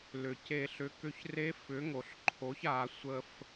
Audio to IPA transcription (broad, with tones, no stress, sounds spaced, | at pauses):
l ʏ˩ c e˨˩˦ ɬ ʏ˩˥ k ʏ˧˩ ç r e˧˥ f ʏ˩˥ ŋ o˩ ɬ ǃʰ o˩˥ ç a˨˩˦ sʷ ə˧˩ f